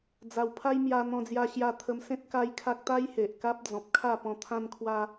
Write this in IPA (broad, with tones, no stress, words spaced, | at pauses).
d͡za˨˩wpʰa˦jmja˧ n̪ɔ̃˧d͡zja˧ ɕja˧t̪ʰə˧msẽ˦t̚ ka˦jkʰa˦k̚ t̪a˦jhe˨ʔ ka˦p̚d͡zɔ̃˨p̚kʰa˥˧ pɔ̃˧t̪ʰã˦nkʰwa˦